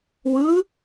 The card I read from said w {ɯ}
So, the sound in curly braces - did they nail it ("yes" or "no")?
yes